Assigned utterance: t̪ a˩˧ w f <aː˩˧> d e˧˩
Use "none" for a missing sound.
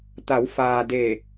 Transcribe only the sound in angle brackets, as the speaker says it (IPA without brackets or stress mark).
aː˩